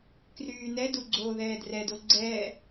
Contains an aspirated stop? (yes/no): no